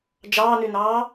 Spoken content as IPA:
d͡ʒ ɑː n y n ɑː

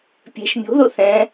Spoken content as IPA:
pʲ ɛ̤ ʃ mʲ o̤ ð o θ ɛ̃

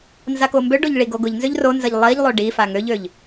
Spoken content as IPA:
n z a k o m b ø ɖ o ʎ ɭ i ɡ o ɡ ʊ ʎ n z ø ʎ r o n z ə ʎ lˠ i ʎ lˠ ø ɖ i f a ŋ ø ʎ ø ʎ

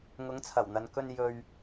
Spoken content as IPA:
ŋ ʊ˨˧ ŋ t͡sʰ ɐ˨˩ w n̪ ɐ˨ n k ɵ˧ n j ɵ˨ ɥ

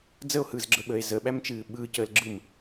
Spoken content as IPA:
d͡z ə o̯ h ɯː z ɡ͡ǁ ə ɓ əː e̯ z ə ɓ æ m t͡ʃ ɨː ɓ ɯː c əː l ɡ͡ǁ ɯ m

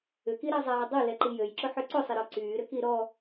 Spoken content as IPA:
ʏ k i ɾ a zˤ aː dˤ o l ɛ ǃ i j ø j ǁ ʊ ħ ʏ ǀ ʊ sˤ ɪ ɾ ɔ ǀ yː ɾ ʏ k i ɾ ɔ

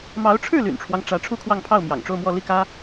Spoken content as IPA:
m ɑ˧˥ ʊ̯ ʈ͡ʂʰ ɻ̩˥˩ l y̰˨˩ n ʈ͡ʂʰ w ɑ˦ ŋ ʈ͡ʂ ä˧˥ ʈ͡ʂʰ u˥˧ kʰ w ɑ˥˧ ŋ pʰ ɑ˥˩ ʊ̯ m j ɑ̰˨˩ ŋ ʈ͡ʂ o˥˧ ʊ̯ m w ɔ˥˧ l i˥˩ k ä˥

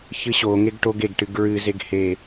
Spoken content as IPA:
ç ɨ ɕ o ŋ e ɡ ʈ o ɡ e ɡ ʈ ɨ ɡ ɹ ɨ z e ɡ h e

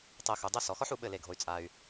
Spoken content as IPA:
tˤ ɛ˧ x u˩˧ dˤ ɐ˥ s ɔ˩˧ x ɔ˥ ħ u˩˧ ɓ ɘ˥˧ l e˧˩ ɡʱ o˧ y̯ t͡sʼ a˧ y̯

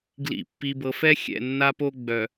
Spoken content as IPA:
ɡ l ḭ˨ pː i˨ b ɤ˨ f ɛ˦ xʲ ɛ̰˦˨ nː a˦ p o˦ ɡ͡b œ˨

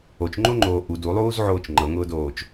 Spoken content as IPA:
o t͡ʃ ŋ͡ǃ o ŋ͡ǃ oː ʔ u d u lˠ uː z ʕ oː t͡ʃ ŋ͡ǃ ɤ ŋ ʊː d oː t͡ʃ

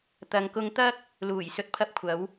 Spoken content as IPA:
t̪ ɐ˨ ŋ k ʊ˧ ŋ t̪ ɐ˥ k̚ | l uː˨˩ j s ɵ˨ t̚ pʰ ɐ˧ p̚ kʷʰ ɐ˨˧ w

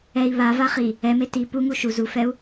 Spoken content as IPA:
ɛ i̯ β a v a χ i | ɛ m e t i p u ŋ u ʃ u z u f ɛ u̯

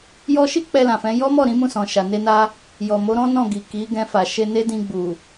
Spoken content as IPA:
j ɔ˧ ʃ i˦ k͡p ɛ˧ l ã˨ f ɛ̃˨˦ j ɔ˦ m ɔ˦˨ ɾ ĩ˨˦ m ũ˦˨ s ɔ̃˨ ʃ a˨ n e˧ n a˧ | j ɔ˨ m o˨˦ ɾ ɔ̃˦ n ɔ̃˦˨ ɡ i˨ k i˨˦ ɡ ɛ̃˧ f a˨ ʃ e˧ n e˦ d ĩ˧ ɡ͡b u˨

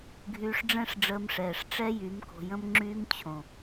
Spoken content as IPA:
ɡʱ yː˧ ʂ ɖ͡ʐ ɛ̃˦ ʂ ɖ͡ʐ əː˧ m ʂ ɛː˨ ʂ ʈ͡ʂ ɛ˦ j y˨˦ m k o̤˧ j ə̃˦ m ŋ͡ǁ yː˦ m t͡ɕʰ õ˨

